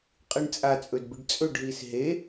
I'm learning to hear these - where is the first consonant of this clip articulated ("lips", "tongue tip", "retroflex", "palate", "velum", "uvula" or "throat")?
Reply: uvula